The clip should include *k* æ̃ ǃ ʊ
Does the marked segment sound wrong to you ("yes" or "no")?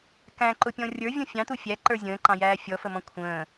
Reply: no